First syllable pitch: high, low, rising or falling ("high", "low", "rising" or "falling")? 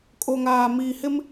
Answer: low